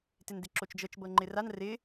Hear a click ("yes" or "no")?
yes